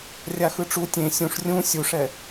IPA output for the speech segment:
rʲ a x ɯ ʈ͡ʂ u tʲ ẽ sʲ ũ ʂ rʲ ũ sʲ u ʂ ɛ

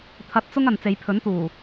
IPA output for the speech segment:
t̪ʰ ɐ˧ t̚ t͡s ʊ˥ ŋ ɐ˨ n t͡s e˨˧ j pʰ ɵ˨˥ n t̪ uː˨˩

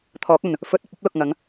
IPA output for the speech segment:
t̪ʰ ɔː˨˥ k̚ ɵ˨ n | f ɵ˨˥ t̚ ɐ˨ p̚ ɐ˨˥ p̚ l ʊ˨ k̚ ŋ ɐ˨˧ ŋ

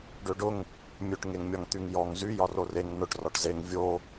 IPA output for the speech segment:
ɖ ø ɖ ʊ ŋ | mʲ ø ʈ ŋ e ŋ mʲ ɒ ŋ t̪ y ŋ j ɔ ŋ z y j ɒ r o r e ŋ n ʊ ʈ r ɒ ʈ z e ŋ vʲ o

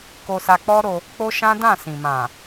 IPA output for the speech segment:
k o˧ s a˧ k͡p ɔ˦ ɾ o˧ | k͡p o˦ ʃ ã˦ d ã˦˨ s ĩ˨ m ã˨

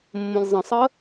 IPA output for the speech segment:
mː õ lʲ zˤ ə̃ sˤ ə

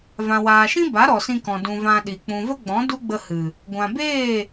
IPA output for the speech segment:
v ã˨ w aː˨ ʃ ĩ˦ b a˨˦ ɾ ɔ˨ s ĩ˧ k ɔ̃˨ d ũ˨ v ã˧ ɗ i˨ k͡p ũ˨ v ə˦ ɡ͡b ɔ̃˨˦ d u˦ ɡ͡b ə˧ h ɨ˨ | ɡʷ ã˨ b eː˦˨

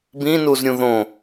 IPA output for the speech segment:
b ĩ n u z ɾʲ ũ ð õ

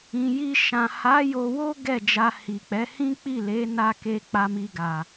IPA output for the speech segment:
ĩ˨ j i˧ ʃ ã˨ h a˨˦ j o˧ w o˦ ɡ ɛ˦˨ d͡ʒ a˧ h i˨ k͡p ɛ˨˦ h ĩ˦ k͡p i˦˨ l e˨˦ n a˧ k e˧ k͡p a˧ m i˧ ɡ a˨

